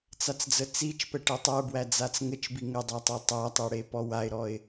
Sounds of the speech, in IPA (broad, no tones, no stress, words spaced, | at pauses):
t͡sat͡sd͡zət͡sit͡ʃpɛ ʈɛtˤə˞bwæ d͡zat͡sŋət͡ʃbi ŋədˤæ tˤetˤætˤe ɽepɔwaɪ̯ɾɔɪ̯